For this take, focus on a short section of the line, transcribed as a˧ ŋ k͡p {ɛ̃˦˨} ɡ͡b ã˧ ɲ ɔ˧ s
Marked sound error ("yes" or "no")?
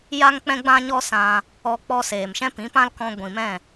yes